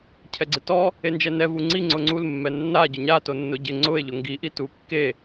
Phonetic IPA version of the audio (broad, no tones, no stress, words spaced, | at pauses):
cʰɛɡ͡ǀɪtɔ | end͡ʒɛnɛ vuŋ͡ǀi ŋ͡ǀʊŋ͡ǀulmːɛ nːa ɟʊɲa tonːʊɟɪ ŋ͡ǀʊe̯ʎʊ ŋɡi ʔitukːe